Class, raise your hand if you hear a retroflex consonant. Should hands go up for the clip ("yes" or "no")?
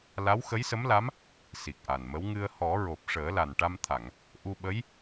yes